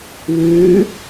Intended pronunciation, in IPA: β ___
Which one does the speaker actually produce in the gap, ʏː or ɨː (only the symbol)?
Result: ɨː